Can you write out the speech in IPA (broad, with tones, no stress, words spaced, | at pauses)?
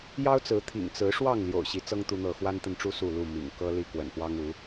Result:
jɑ˦ʊ̯t͡sɹ̩˨˦t̪ʰḭ˨˩ŋ t͡sɹ̩˨˦ʂwɑ˥˨ŋ ljo̰˨˩ʊ̯ɕi˨˦t͡sɤ˦ŋ t̪u˦n̪ɤ˥˨ xwa˦nt̪ə˨nʈ͡ʂu˦ su˥˨lu˥˨ mḭ˨˩ŋ kɤ˦ li˦kwə̰˨˩npwɑ˦ŋ u˨˦